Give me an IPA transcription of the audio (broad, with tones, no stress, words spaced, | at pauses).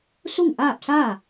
su˥˨ŋʔaː˥˨p̚saː˥˨